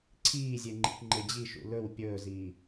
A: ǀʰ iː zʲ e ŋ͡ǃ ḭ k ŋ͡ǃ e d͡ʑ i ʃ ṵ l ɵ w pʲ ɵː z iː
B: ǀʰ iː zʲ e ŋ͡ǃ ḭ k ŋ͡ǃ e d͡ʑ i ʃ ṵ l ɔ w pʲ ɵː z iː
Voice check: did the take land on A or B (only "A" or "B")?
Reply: A